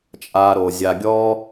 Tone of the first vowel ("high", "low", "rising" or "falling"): low